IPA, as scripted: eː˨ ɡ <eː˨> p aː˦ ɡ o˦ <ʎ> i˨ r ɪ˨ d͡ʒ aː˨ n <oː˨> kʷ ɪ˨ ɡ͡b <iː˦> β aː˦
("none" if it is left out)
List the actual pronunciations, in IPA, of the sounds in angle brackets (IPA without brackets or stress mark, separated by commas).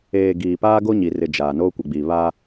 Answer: iː˨, ɲ, oː˦, iː˨